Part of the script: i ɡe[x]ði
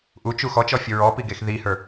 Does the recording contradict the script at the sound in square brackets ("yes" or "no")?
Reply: no